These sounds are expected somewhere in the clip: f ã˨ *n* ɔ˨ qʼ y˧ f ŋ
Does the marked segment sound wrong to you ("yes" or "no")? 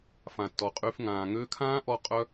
yes